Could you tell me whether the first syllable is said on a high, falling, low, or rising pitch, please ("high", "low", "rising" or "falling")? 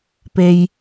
high